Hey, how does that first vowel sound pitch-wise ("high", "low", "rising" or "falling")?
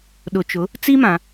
low